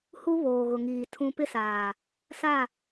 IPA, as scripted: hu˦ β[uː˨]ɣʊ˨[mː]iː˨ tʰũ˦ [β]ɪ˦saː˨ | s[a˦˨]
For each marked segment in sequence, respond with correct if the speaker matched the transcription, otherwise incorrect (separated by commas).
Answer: incorrect, incorrect, incorrect, correct